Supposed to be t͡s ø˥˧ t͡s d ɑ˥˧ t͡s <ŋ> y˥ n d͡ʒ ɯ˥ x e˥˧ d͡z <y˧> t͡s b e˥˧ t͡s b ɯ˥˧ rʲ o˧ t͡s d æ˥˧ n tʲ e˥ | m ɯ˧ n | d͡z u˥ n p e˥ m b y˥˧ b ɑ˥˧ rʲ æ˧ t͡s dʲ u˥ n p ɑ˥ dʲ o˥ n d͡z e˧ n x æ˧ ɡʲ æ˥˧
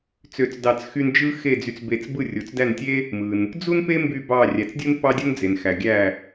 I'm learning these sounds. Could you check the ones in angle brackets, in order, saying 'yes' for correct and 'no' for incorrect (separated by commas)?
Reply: no, no